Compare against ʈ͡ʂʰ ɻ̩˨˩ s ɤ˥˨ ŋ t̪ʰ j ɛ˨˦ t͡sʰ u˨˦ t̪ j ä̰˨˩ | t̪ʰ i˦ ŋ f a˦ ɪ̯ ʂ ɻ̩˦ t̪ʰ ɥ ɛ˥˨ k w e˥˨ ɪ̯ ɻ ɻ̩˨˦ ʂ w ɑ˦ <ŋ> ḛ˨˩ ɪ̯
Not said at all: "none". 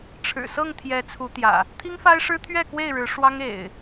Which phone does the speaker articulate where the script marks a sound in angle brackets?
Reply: ŋ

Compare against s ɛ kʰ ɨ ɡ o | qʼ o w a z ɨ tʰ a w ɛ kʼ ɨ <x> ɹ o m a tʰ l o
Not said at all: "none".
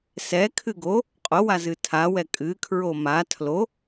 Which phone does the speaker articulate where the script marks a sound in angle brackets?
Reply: kʰ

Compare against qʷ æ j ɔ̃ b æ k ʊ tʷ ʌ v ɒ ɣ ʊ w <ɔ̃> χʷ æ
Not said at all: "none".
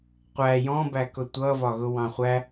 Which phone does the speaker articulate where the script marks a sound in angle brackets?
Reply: ɑ̃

